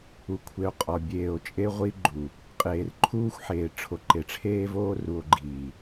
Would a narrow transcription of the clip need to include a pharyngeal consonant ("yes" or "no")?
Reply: yes